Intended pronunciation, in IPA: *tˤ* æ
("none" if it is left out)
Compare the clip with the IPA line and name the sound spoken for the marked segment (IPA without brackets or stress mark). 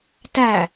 t